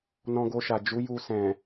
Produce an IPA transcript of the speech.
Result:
n ɔ̃˧ ɡ o˧ ʃ a˨ d͡ʒ u˨˦ j u˧ s ɛ̃˨

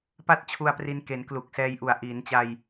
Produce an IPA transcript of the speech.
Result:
p a˥˩ t̚ t͡ɕʰ u˧ a̯ p r i˧ n k e˩˦ n k l u˨˩ k̚ s ɛː˧ j ʔ u˨˩ a̯ ʔ iː˩˦ n t͡ɕ a˧ j

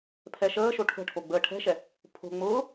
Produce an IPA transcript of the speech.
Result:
pʰ ɛ ʃ əː ʃ o ʈʰ ə̤ ʈʰ o ɡ͡b əː ʈʰ ɛ̤ ʃ ɛ | pʰ o̤ ŋ͡m ʊː

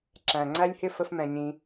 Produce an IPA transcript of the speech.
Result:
ǁ æ̃˨ ŋ͡ǀ æ˦ lʲ h ɪ˦ f ə˦ f m ɛ̃˧ ɲ ĩ˧

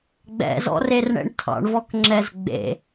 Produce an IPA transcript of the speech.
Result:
ɡ͡b ɛ̰ z ɔ̰ r e r ɳ ɛ̰ ɳ tʰ ɑ̰ ɳ v ɔ k ŋ͡ǁ ɛ z ɡ͡b ḛ

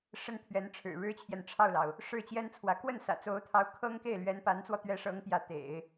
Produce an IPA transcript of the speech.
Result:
ʂ ə˥ n t̪ʰ ɥ ɛ˧˥ n ʈ͡ʂʰ ɻ̩˨˩ ɻ ɻ̩˥ t͡ɕʰ j ɛ˨ n ʈ͡ʂʰ ɑ˥˩ ʊ̯ l ɑ˩ ʊ̯ | ʂ ɻ̩˥˩ t͡ɕ j ɛ˥ n t͡sʰ w ä˧˥ k w ə˥˩ n s ä̰˨˩ t͡s o˧˥ ʊ̯ t̪ʰ ɑ˧˥ ʊ̯ kʰ ɤ˥ ŋ k e˥˩ ɪ̯ l ɥ ɛ˧˥ n p a˧˥ n t͡s w ɔ˧ t̪ ɥ ɛ˧˥ ʂ ɤ˧˥ ŋ p j ä˧˥ t̪ ḛ˨˩˦ ɪ̯

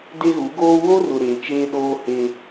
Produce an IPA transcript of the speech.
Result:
d e˦ ɣ u˨˦ ɡ oː˦ w o˦ r ʊ˨ ɾ eː˨ t͡ʃ eː˦ ɗ oː˦ h e˦

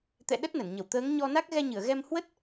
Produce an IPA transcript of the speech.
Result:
t̪ ɛ̰˧˨ ɗ ə˦˥ t̚ n ə˧˩ n ɲ ə˧˩ w t̪ əː˨˦ ŋ ɲ ɔ˧ n a˦˥ k̚ ɣ ɛ˧ ɲ ɨ˧˩ ə̯ ɣ ɛ˧ m h w ə˦˥ t̚

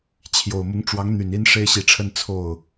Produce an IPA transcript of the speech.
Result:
t͡ɕʰ j o˨˩ ʊ̯ m ʊ˧˥ ŋ ʈ͡ʂ w ɑ˧˥ ŋ n̪ y˨˩ n i˥ n ʂ e˥ ɪ̯ ɕ i˧˥ ʈ͡ʂʰ ə˥ n t͡sʰ o˥˩ ʊ̯

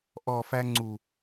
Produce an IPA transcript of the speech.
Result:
ʔ ɔ˨ f æ˧ ŋ͡ǀ u˨

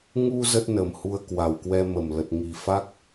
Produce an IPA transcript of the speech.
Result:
ŋ u˧ z ə˦˥ t̚ n ə˨˩ m h u˧ ə̯ k w a˨˩ w k w ɛ˧ m ə˨˩ m l ə˨˩ t̚ ŋ i˨˩ f a˦˥ k̚

